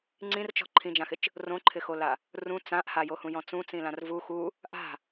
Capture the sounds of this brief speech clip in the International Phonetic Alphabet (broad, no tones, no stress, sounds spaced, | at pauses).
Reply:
ŋ͡ǀ ĩ r t͡ʃ ɔ̤ ǃʰ ĩ d͡ʒ ã x ɪ t͡ʃ | r õ ǃʰ ɪ x o l a | r ũ t͡s ã ʔ h a j o h ũ j ɔ̃ t͡s ũ t͡s ĩ l ã r v u x u | ʔ a̤